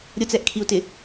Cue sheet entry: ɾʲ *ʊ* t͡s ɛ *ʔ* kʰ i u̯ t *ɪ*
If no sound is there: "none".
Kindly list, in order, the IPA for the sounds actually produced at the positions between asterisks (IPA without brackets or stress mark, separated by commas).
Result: ʊ, ʔ, ɪ